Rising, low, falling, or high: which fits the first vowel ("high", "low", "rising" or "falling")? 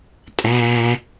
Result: low